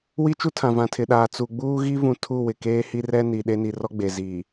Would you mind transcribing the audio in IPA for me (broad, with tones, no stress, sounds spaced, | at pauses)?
w i˦ t͡ʃ u˦ tʰ ã˨ v ã˨ tʰ ɪ˨ ɗ aː˨ t͡s u˨ ɡ͡b uː˦ ɣ i˦ v ũ˨ tʰ u˦˨ w ɪ˨ k eː˦ h i˦ r ɛ˦ n i˨ ɗ e˦ n i˨ r ɔ˦ ɡ͡b e˨ z iː˨